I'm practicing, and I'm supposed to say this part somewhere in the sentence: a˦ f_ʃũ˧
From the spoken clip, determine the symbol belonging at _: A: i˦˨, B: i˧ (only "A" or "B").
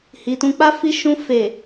B